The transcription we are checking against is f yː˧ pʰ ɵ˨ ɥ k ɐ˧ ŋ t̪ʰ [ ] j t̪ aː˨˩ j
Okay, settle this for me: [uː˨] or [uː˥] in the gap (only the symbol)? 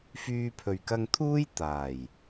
uː˥